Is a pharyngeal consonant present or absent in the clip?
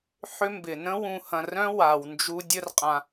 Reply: present